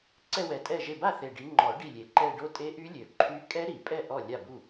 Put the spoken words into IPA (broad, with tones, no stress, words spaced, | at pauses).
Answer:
ǀɛ˥˧wɛ˨˩tʼɛ˥˩ʒe˥˩ ba˥˩θe˨˩ ɖi˨˦ŋ͡ǃɔ˨˩˦ ɖi˥˩lʲe˨˩˦ǃɛ˥˧ ɖo˦˥tʼe˦˥ʔy˦˥lʲø˨˩ ǃʰy˦˥ kʼɛ˦˥ɾi˨˩˦pʼɛ˥˩ ʔɔ˥˩ lʲa˥˩bu˥˩